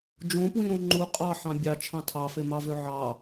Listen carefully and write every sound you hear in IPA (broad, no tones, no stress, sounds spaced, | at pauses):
d͡ʒ õ p w ĩ ɾ õ ŋ͡ǃ u qʼ ɑ ħ ɑ̃ bʲ ɑ t͡ʃʰ ɑ̃ tʰ ɑ f e m ɑ v ø ʕ ɑ